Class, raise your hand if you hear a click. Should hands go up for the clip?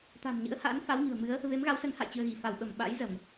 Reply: no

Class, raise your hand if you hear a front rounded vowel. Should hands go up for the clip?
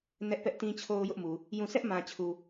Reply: no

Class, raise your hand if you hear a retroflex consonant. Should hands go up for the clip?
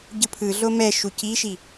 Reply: no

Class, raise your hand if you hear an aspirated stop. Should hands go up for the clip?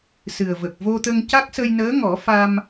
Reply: no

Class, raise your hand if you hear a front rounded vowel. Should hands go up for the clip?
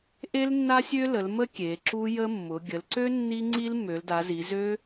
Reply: yes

